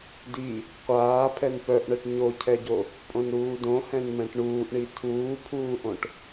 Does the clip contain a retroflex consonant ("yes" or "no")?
yes